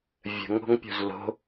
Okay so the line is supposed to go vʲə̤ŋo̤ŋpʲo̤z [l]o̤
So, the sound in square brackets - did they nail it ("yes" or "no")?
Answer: yes